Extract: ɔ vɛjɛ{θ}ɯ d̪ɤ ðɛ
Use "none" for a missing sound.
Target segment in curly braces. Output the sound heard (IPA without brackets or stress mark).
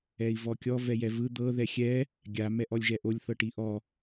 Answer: v